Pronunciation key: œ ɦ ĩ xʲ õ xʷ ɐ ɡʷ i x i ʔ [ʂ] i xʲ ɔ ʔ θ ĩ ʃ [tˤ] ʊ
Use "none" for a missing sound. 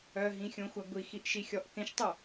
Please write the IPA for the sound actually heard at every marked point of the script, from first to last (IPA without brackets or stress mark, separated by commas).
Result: ʃ, tˤ